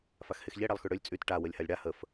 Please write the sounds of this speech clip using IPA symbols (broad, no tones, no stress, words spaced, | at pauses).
faxhexʎe ɽalˠxyɽølʲ t͡sʼyt ʈa wəlʲhalʲɽa həf